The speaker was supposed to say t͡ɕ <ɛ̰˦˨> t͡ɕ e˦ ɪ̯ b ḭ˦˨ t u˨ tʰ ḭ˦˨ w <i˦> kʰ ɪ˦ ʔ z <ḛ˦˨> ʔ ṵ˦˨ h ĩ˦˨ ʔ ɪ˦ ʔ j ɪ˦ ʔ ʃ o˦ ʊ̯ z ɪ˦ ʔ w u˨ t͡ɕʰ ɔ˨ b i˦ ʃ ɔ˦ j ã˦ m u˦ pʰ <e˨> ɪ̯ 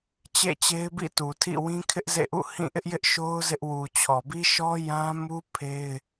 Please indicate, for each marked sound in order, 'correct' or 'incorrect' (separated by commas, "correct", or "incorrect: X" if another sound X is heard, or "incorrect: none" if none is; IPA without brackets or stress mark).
incorrect: ḛ˦˨, incorrect: ĩ˦, correct, incorrect: e˦